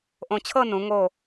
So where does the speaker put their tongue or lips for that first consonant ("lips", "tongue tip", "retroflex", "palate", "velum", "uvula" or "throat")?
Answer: throat